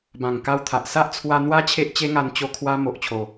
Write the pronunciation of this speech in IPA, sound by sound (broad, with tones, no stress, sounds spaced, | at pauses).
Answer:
b ã˨˩ ŋ k a˧ w t̪ʰ a˨ ʔ s a˦ ʔ t͡sʰ w a˧ n̪ w a˦ t͡ɕʰ e˦ ʔ t͡ɕ e˦ ŋ a˧ n t͡ɕ o˧ kʰ w a˧ m o˨ ʔ t͡ɕʰ o˨˩